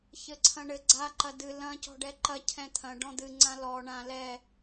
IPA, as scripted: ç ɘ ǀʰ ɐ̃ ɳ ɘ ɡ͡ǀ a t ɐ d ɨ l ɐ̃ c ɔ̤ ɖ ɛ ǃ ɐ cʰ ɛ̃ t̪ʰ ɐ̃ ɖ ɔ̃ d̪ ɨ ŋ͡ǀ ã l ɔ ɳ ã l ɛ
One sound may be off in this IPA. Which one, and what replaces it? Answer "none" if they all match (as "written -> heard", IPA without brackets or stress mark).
t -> ǃ